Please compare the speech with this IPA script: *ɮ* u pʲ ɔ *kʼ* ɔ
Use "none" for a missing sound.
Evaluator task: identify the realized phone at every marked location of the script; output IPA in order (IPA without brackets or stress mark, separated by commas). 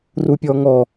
r, ŋ